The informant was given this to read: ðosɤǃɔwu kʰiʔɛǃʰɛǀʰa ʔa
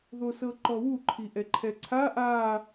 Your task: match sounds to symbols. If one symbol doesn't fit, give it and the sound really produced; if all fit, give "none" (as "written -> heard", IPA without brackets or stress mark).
kʰ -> ǃʰ